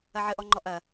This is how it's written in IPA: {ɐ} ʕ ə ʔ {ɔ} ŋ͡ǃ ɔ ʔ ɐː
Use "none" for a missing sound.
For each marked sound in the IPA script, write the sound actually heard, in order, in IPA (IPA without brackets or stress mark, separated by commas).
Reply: ɐ, ɔ